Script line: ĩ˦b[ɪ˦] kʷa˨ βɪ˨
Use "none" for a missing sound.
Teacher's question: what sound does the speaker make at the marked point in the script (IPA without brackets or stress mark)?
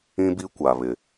i˦